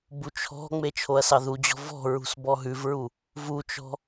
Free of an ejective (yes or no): yes